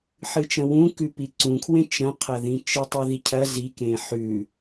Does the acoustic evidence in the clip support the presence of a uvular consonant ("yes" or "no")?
yes